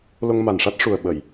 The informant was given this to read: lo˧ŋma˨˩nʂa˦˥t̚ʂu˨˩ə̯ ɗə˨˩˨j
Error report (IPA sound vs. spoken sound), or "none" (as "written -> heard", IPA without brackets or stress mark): ɗ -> ɓ